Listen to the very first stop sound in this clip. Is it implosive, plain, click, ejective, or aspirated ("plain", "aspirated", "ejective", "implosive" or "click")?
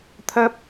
aspirated